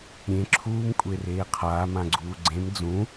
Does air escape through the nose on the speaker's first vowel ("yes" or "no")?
yes